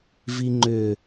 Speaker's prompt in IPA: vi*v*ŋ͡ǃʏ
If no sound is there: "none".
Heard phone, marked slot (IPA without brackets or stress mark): none